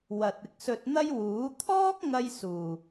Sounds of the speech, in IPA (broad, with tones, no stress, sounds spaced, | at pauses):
w ɐ˨ t̚ ɪ˨ k̚ s ɵ˧ t̚ n̪ ɐ˥ j w uː˨˥ t̪ʰ ɔː˥ k̚ ŋ ɐ˥ j s uː˨˩